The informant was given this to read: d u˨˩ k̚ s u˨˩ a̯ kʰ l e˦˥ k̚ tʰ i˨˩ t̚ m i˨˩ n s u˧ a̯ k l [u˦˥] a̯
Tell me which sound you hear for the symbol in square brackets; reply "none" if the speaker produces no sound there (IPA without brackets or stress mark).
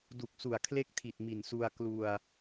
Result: u˧